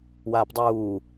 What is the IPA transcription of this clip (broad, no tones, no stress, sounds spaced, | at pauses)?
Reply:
w aː p dˤ uː